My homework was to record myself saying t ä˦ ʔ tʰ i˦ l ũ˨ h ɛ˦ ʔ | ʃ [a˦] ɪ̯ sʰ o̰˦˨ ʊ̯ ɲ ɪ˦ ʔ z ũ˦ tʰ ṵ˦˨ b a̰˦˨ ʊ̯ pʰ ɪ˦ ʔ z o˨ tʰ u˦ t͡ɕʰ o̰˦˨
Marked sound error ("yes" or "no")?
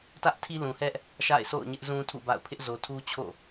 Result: yes